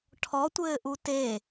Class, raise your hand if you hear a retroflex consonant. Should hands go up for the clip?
yes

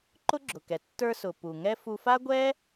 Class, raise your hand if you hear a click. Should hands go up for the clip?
yes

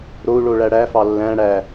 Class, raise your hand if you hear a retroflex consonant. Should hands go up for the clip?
yes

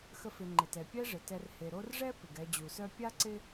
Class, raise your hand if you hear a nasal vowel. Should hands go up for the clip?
no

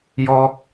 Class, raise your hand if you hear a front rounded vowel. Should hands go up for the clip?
no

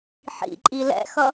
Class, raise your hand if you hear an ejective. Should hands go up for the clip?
yes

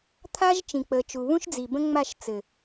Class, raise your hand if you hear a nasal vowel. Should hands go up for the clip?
yes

